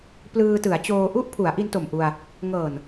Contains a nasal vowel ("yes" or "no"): no